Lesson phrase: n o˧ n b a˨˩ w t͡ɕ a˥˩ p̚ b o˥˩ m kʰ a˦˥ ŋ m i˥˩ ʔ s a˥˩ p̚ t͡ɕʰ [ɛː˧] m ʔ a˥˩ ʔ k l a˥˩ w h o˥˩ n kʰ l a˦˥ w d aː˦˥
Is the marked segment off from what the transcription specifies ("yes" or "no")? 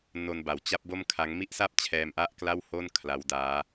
no